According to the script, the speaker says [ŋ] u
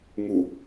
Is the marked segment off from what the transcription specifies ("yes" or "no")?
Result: no